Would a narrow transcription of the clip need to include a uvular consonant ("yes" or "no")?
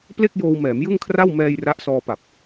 no